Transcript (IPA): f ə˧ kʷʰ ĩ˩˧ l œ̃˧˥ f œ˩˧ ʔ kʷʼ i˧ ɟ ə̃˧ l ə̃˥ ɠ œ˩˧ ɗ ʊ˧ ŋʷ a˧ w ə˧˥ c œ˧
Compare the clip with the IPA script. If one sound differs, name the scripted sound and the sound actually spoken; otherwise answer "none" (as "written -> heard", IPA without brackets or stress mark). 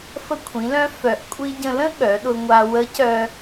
none